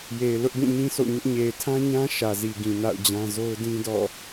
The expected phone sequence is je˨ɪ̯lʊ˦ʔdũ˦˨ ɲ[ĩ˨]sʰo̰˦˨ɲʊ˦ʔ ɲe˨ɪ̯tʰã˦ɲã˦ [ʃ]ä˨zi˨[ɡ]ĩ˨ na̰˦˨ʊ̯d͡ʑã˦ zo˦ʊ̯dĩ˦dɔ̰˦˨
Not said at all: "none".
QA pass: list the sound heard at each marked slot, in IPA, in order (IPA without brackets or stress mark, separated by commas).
ĩ˦, ʃ, ɡ